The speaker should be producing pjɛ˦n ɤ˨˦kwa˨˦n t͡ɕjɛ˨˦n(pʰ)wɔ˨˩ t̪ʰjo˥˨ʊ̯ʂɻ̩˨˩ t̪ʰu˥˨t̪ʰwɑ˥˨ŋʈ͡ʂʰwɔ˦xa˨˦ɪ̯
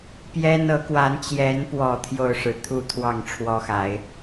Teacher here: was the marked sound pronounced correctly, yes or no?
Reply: no